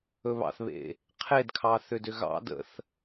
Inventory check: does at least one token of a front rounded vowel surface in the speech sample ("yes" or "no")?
yes